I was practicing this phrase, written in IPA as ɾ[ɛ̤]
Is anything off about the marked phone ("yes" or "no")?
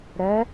yes